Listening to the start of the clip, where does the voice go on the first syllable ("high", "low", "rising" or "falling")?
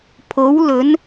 rising